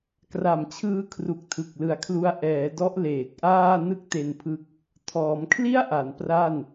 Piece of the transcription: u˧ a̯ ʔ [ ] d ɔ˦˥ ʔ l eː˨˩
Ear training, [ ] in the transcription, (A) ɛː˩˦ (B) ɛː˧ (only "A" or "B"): A